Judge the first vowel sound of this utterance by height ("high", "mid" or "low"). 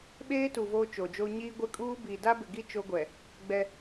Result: mid